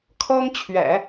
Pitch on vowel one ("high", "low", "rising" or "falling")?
high